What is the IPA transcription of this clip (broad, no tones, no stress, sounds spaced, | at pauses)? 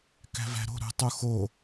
k æ̤ v æ̤ ɾ o̤ ɾ ṳ tˤ u x o